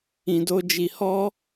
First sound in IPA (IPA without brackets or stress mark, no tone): ĩ